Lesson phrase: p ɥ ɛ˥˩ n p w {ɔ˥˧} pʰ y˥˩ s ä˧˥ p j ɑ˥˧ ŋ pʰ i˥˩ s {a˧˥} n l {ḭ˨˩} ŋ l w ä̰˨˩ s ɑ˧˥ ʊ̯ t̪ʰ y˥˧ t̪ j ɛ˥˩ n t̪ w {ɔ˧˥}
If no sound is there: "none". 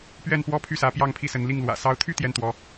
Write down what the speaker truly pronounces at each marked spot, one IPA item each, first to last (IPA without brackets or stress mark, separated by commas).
ɔ˥, ə˧˥, i˥˩, ɔ˧˥